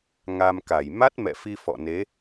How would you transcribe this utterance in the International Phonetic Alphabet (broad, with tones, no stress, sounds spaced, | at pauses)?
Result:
ŋ a˧ m k a˧˩ j m a˦˥ t̚ m ɛ̰˧˨ f i˧ f ɔ̰˧˨ n e˨˦